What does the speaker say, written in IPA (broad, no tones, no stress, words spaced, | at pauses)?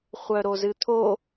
χʷœɾozɨt̪ʰo